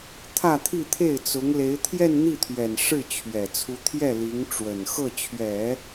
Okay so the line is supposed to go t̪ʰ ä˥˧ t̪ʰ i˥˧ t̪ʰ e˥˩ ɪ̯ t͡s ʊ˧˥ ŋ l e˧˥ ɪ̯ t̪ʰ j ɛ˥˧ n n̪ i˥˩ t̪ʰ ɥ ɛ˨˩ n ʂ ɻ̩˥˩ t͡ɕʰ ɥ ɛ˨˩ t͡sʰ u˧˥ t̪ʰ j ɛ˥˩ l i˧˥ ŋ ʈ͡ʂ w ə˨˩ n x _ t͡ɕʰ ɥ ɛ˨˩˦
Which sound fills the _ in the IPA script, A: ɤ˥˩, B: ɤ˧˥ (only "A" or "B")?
A